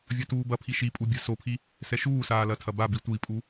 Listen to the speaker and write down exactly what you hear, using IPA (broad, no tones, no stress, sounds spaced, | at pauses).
vʲ ɐ t uː b ɐ pʰ i ʃ i pʼ u bʲ a̤ s o pʰ i | s ɛ ʃ uː s aː l ɐ tʰ ɐ b a b i tʷ i pʼ u